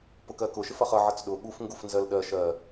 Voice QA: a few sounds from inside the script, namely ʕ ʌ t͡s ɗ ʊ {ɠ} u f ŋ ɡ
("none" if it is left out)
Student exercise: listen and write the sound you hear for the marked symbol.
ɠ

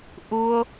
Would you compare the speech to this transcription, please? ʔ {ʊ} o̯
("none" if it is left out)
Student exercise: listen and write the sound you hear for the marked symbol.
u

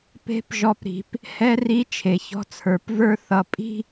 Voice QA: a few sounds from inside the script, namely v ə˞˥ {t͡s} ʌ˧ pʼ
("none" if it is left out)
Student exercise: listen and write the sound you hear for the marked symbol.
θ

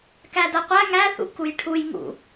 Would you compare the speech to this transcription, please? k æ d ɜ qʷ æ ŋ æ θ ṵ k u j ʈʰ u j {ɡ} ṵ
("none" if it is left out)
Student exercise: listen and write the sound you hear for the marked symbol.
ŋ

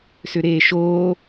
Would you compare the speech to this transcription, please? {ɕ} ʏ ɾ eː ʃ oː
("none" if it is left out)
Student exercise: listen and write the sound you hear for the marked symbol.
s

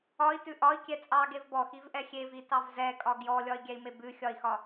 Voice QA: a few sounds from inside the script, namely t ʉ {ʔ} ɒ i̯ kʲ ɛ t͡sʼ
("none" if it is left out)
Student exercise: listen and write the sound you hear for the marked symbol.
ʔ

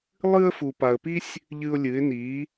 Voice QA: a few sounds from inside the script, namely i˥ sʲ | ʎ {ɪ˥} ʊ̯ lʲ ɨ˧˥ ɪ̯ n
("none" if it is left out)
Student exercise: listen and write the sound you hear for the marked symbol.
ɨ˥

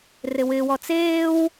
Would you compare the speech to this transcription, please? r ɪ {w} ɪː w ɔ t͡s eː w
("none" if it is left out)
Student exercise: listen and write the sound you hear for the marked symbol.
w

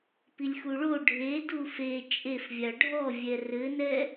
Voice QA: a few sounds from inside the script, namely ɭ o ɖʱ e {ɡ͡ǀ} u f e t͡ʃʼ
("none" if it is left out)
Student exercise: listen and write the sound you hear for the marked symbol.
d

